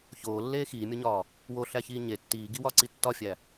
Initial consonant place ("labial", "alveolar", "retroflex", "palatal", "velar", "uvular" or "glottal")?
palatal